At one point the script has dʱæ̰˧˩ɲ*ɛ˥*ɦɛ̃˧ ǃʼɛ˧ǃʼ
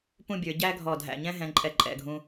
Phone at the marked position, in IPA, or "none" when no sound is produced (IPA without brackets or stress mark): ɛ̃˥